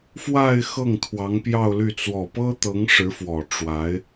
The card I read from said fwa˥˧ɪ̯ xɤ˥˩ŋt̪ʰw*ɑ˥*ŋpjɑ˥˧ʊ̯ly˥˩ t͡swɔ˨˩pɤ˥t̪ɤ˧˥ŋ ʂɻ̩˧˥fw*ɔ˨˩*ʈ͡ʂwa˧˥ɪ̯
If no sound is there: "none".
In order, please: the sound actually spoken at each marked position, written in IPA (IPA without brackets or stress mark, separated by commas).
ɑ˧˥, ɔ˨˩